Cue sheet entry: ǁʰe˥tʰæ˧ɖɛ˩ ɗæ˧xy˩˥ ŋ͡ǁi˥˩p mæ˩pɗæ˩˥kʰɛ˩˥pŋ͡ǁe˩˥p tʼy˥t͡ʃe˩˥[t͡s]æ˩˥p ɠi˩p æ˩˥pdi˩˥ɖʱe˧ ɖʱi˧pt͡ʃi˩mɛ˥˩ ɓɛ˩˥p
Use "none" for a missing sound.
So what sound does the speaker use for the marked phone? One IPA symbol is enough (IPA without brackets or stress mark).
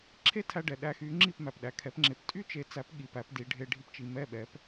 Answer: t͡s